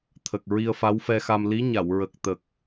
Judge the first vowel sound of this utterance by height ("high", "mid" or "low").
mid